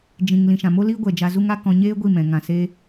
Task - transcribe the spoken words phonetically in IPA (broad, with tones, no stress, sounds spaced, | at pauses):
d͡ʒ ĩ˨ ŋ l ĩ˨ ʃ ã˨ m o˦ l iː˦ ɡʷ ɛ˨ d͡ʒ a˧ z u˦ ŋ a˦ k ɔ̃˧ ɲ eː˦ ɡʷ i˦˨ m ɛ̃˨ ŋ ã˨ s eː˧